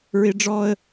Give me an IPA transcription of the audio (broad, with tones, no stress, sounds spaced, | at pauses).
ɹ ɪ˦ ɖ͡ʐ ɔː˦ ə̯